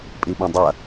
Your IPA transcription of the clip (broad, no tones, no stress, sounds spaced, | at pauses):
pʼ i ɓ ɐ̃ dˤ ɐ